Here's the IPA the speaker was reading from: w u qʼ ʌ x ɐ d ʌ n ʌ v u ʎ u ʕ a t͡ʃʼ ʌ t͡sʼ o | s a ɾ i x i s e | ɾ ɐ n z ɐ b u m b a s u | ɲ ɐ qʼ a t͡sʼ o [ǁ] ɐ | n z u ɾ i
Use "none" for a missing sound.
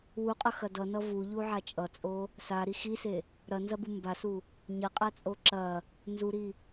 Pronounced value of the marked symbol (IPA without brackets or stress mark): ǁ